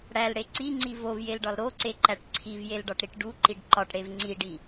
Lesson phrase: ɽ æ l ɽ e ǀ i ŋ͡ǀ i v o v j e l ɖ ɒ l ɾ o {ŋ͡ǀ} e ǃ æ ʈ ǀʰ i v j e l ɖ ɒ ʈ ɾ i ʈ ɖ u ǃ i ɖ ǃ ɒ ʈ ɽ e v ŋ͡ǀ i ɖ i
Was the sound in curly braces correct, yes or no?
no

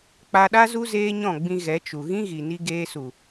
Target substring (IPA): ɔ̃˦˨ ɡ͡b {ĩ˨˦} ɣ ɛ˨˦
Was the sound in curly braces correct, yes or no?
no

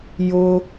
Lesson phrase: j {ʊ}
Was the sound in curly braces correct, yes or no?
yes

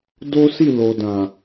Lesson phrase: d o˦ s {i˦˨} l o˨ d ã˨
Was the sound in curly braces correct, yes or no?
yes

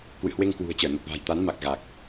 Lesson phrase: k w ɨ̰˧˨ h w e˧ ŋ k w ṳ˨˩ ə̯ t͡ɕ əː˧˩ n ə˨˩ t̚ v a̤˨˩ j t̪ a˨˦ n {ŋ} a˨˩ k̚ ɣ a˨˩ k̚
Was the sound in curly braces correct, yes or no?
no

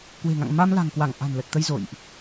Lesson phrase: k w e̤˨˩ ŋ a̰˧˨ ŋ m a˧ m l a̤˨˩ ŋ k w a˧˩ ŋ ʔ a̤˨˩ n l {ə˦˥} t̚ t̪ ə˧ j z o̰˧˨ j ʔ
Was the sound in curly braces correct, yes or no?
no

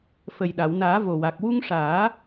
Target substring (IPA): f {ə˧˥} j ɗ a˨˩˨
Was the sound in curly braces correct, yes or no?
no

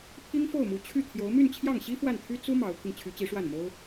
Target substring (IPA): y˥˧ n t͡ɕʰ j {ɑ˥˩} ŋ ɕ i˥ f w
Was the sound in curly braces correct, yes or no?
yes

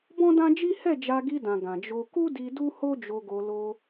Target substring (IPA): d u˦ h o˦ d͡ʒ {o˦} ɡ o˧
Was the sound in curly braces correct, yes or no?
no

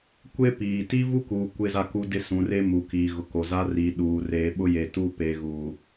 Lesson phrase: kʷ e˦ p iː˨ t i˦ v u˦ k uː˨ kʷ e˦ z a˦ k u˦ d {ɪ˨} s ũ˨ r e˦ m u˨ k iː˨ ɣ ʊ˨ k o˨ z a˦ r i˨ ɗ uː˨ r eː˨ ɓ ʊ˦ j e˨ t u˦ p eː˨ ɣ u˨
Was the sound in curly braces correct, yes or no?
no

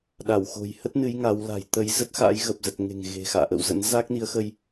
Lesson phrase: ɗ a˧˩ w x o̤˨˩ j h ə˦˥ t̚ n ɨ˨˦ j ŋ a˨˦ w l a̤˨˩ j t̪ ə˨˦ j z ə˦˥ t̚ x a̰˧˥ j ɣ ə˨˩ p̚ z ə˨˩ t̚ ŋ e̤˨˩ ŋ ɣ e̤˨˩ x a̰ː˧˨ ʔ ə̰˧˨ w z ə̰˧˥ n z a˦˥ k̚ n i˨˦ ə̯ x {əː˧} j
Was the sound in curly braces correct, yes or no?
no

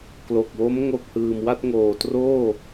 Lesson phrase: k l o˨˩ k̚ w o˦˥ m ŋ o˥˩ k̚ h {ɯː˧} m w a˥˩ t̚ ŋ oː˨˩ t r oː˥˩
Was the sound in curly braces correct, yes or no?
yes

